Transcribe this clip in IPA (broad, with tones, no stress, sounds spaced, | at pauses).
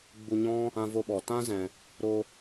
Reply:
ɡ͡b u˧ ɲ ɔ̃˦ | ã˦ v o˦ ɓ ɔ˨ t ã˦ z ɛ̃˨ | ɾ o˧